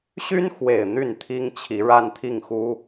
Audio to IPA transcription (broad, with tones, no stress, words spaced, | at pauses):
ɕy˥nxwe˨˩ɪ̯ n̪y˥˩nt̪ʰi˥ŋt͡ɕʰi˧˥ ɻa˥˧nt̪ʰi˥˩ŋxu˥